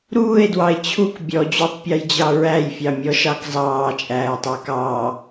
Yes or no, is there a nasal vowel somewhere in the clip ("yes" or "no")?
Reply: no